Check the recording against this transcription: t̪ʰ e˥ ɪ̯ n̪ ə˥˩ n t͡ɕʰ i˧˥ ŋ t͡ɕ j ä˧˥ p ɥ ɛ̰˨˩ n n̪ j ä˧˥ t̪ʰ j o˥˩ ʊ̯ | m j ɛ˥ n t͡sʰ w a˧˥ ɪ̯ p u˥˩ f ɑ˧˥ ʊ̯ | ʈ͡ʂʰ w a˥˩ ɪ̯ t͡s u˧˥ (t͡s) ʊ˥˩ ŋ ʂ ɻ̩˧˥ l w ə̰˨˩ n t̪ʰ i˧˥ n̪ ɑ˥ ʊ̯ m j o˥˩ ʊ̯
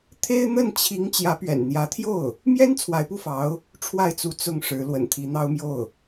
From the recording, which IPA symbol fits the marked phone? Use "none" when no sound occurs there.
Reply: t͡s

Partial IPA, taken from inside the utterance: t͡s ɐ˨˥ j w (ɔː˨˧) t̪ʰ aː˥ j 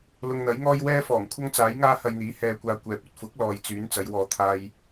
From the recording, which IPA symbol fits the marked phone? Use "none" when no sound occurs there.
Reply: ɔː˧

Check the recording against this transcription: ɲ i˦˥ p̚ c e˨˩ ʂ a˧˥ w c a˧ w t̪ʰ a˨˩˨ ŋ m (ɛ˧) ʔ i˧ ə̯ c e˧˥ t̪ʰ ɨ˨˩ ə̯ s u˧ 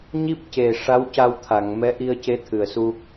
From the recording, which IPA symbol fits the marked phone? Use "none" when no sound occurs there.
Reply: ɛ˧˥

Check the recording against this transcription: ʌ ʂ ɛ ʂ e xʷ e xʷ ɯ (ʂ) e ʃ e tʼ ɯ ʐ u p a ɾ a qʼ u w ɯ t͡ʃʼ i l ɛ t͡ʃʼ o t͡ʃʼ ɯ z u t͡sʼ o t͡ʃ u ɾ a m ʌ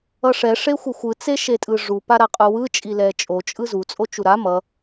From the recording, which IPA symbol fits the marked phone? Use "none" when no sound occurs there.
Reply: t͡s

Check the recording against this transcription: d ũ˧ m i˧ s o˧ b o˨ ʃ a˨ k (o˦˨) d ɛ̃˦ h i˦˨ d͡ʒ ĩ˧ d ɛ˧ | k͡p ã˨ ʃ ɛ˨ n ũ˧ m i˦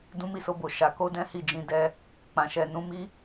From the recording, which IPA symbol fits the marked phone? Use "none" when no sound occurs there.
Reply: o˧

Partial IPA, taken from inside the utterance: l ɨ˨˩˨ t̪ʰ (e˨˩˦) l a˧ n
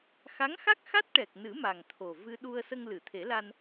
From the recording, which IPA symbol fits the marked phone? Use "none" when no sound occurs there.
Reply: e˨˩˦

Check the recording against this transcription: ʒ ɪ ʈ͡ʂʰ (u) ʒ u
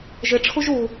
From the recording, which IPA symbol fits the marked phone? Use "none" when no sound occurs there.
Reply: u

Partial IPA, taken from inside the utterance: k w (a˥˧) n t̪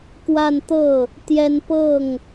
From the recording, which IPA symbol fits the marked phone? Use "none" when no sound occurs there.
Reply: a˥˧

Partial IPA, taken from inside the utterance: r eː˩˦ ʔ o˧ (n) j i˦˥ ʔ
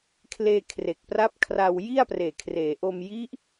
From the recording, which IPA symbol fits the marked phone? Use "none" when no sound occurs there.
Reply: m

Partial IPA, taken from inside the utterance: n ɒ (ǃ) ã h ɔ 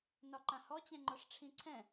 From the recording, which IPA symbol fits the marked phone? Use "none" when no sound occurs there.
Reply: ǃ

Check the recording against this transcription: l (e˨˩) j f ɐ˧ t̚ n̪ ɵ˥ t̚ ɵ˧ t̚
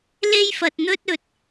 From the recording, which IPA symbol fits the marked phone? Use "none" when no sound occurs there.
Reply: e˥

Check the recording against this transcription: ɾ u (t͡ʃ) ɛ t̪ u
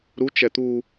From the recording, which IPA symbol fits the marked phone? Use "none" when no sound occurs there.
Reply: t͡ʃ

